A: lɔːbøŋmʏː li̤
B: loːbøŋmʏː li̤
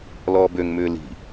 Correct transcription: A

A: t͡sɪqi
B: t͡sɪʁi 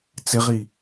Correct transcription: B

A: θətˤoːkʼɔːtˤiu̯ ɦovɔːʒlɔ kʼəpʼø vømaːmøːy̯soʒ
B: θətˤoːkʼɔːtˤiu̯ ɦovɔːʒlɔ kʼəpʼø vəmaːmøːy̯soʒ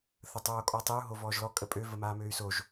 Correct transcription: B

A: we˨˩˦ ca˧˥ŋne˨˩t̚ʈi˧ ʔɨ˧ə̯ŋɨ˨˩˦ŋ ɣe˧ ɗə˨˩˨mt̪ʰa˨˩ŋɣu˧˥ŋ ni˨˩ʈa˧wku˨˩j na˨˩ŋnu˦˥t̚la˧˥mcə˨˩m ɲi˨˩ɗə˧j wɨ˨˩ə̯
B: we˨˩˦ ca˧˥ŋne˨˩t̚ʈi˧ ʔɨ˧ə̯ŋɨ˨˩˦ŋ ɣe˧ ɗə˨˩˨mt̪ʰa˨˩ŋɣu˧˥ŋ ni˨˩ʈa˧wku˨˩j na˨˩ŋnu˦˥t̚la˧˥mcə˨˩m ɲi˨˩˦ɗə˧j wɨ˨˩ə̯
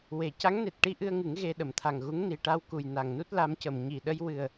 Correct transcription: A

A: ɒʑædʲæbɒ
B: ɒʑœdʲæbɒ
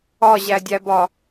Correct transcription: A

